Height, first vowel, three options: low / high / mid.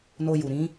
mid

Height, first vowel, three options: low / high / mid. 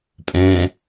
mid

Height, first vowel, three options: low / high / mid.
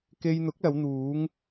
mid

